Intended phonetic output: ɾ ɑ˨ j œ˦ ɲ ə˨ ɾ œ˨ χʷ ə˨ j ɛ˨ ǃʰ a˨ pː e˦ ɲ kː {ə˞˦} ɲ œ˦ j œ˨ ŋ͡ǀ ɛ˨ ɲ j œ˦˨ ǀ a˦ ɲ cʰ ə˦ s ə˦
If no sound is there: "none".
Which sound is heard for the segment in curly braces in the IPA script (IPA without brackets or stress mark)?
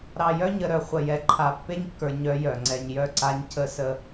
ə˞˨